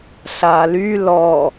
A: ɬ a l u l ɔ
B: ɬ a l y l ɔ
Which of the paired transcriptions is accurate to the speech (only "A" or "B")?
B